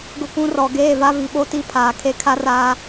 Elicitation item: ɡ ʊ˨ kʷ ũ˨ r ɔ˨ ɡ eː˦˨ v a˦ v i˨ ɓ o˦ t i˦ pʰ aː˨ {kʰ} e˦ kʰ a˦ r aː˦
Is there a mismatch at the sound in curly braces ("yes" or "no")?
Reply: no